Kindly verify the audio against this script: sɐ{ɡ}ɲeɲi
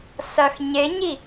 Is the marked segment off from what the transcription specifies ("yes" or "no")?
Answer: yes